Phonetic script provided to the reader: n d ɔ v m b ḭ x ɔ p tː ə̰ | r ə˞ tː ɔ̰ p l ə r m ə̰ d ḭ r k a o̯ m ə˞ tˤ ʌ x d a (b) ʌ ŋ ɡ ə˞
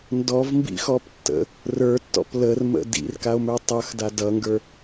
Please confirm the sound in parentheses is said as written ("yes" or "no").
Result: no